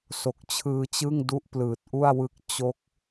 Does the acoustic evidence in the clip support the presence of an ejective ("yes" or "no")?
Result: no